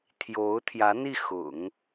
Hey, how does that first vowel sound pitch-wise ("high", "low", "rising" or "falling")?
rising